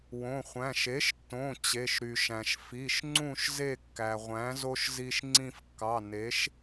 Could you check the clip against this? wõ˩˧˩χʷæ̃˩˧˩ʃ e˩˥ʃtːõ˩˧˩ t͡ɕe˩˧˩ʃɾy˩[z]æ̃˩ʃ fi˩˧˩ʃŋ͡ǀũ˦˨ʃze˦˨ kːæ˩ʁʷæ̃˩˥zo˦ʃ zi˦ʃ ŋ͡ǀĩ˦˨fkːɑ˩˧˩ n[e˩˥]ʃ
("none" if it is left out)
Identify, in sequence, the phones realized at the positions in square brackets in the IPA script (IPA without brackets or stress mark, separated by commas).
ʃ, e˩˥